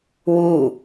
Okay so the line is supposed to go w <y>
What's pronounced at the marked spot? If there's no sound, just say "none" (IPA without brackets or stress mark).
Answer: u